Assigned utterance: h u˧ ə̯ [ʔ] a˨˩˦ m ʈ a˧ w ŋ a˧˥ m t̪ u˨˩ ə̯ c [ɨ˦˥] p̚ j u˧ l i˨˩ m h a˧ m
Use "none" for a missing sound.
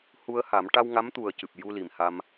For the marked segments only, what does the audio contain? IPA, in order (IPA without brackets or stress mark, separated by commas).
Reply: h, ɨ˨˩